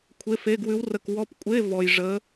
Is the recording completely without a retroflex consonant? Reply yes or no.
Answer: no